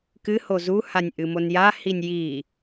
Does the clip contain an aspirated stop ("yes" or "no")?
no